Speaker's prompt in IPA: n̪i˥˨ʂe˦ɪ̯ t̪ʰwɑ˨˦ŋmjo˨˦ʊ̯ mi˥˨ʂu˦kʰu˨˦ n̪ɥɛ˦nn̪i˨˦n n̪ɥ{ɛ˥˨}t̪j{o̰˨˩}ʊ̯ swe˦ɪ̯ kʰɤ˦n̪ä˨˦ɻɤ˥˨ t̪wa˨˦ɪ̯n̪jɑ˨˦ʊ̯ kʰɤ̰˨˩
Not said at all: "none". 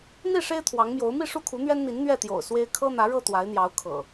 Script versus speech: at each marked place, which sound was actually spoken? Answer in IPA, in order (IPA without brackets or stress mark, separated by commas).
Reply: ɛ˥˨, o̰˨˩